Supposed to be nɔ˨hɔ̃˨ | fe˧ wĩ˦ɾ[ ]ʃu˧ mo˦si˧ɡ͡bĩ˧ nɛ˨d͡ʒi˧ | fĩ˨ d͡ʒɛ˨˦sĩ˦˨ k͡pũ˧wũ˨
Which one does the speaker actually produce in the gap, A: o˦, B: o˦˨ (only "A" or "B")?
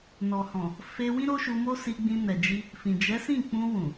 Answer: A